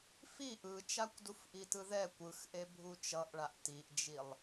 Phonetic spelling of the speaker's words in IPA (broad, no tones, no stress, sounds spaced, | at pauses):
f i ʔ ɯ t͡ʃ a kʷ d u f ʔ i t ɯ ð ɛ kʷ ɯ x ʔ e bʱ u t͡ʃ ʌ ʔ ɭ a ʔ t i ʔ d͡ʒ i lˠ